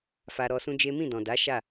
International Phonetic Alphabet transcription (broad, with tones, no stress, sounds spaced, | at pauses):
f a˧ ɾ ɔ˧ s ũ˦ d͡ʒ e˦ m ĩ˦˨ d ɔ̃˨ d a˨˦ ʃ a˦˨